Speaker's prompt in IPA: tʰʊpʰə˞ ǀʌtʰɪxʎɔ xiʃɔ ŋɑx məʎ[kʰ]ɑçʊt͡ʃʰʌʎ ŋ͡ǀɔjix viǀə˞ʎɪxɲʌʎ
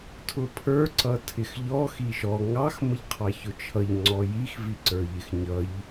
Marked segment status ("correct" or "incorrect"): incorrect